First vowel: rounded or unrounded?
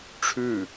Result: rounded